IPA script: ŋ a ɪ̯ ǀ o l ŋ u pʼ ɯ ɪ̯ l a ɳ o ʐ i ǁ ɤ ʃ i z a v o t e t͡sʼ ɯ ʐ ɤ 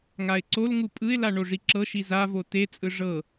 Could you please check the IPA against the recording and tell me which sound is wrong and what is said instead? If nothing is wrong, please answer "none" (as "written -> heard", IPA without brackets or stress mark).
none